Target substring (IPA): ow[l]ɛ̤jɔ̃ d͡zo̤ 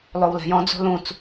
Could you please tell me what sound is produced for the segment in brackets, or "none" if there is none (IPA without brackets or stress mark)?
l